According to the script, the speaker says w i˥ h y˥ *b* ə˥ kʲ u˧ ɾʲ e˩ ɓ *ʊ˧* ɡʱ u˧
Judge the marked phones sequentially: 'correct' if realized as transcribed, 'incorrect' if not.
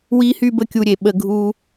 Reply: correct, incorrect

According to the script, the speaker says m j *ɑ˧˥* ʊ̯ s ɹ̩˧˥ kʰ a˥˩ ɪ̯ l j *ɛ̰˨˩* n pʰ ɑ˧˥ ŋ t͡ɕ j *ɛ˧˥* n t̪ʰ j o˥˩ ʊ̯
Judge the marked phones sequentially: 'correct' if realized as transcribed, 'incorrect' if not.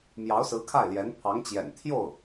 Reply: correct, incorrect, incorrect

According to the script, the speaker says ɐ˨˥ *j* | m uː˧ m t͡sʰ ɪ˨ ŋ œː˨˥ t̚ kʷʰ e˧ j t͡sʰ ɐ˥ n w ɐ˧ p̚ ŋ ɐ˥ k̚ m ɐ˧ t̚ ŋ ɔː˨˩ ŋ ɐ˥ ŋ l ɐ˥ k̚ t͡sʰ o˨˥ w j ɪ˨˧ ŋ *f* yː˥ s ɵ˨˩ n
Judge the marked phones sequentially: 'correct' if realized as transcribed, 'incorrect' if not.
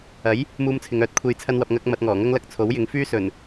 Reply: correct, correct

